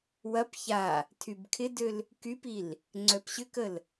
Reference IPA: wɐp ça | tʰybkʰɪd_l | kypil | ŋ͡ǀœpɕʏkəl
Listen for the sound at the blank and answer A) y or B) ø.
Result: B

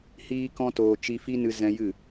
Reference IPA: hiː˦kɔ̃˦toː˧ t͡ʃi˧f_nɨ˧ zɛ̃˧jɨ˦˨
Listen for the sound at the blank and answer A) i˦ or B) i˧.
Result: A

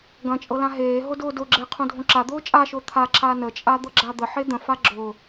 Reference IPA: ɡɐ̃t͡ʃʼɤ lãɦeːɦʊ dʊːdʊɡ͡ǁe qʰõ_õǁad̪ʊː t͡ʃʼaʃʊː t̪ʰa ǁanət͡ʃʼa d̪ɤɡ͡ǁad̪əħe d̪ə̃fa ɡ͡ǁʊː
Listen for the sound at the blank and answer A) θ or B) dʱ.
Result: B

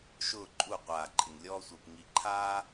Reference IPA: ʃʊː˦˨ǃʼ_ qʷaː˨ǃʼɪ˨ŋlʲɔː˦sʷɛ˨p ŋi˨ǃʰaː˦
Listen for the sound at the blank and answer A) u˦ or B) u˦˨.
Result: B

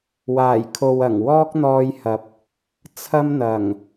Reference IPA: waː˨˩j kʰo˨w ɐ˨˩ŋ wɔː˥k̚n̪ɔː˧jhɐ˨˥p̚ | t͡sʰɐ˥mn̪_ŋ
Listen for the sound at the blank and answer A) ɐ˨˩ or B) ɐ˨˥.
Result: A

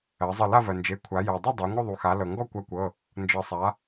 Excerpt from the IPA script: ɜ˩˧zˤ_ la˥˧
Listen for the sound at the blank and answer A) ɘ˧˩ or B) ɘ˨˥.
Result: A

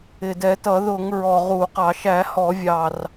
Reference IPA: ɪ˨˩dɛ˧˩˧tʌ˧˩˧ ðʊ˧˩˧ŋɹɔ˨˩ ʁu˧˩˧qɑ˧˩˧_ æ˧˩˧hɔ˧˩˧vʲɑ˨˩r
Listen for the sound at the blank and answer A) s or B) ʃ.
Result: B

